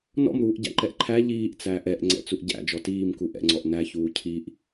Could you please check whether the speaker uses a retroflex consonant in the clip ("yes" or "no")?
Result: no